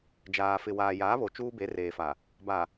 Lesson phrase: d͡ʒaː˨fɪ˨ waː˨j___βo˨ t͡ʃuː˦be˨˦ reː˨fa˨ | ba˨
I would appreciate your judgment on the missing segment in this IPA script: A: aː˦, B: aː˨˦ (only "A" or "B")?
B